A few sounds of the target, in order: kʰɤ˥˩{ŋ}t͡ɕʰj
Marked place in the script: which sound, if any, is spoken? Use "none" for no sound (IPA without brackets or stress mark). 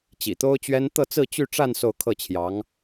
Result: none